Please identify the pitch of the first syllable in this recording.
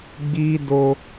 high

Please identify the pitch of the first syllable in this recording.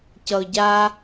low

